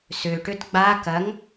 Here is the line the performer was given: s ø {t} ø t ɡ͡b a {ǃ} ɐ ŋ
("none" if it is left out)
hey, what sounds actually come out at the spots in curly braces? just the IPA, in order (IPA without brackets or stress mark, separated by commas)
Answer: ʈ, k